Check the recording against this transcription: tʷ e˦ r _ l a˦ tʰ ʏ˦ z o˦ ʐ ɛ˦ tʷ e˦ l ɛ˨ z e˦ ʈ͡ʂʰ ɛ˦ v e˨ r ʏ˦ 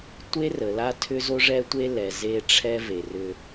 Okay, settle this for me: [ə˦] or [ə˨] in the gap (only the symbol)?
ə˨